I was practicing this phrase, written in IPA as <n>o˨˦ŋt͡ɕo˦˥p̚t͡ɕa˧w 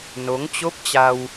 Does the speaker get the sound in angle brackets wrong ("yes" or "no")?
no